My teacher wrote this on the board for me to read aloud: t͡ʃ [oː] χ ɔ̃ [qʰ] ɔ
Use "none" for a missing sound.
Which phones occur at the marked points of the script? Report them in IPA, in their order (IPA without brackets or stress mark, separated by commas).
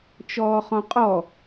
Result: ɔː, qʼ